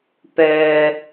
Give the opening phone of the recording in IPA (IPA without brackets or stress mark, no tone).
p